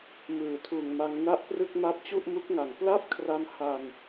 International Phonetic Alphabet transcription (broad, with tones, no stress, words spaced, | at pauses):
mɯː˩˦tʰuː˨˩ŋma˧ŋ na˥˩ʔprɯ˥˩k̚ ma˦˥p̚t͡ɕu˥˩ʔmu˦˥k̚ŋa˨˩ŋ pla˥˩p̚kʰra˧m ha˧n